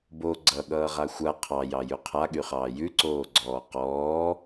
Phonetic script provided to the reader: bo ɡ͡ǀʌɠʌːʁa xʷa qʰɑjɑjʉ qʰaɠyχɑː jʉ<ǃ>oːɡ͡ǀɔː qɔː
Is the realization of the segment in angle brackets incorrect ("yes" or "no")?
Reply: yes